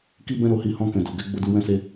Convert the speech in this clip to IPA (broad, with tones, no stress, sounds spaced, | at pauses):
k i˦ b ɛ̃˦ ɾ o˧ h i˦ h ɔ̃˧ k ɛ̃˨ d o˨ ɡ ɛ˨˦ ɡ͡b o˧ d u˧ w ɛ̃˦ s e˦